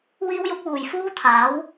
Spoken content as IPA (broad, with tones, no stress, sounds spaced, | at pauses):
w iː˥ w j ʊ˥ k̚ w uː˨ j f uː˥ t̪ʰ aː˨˥ w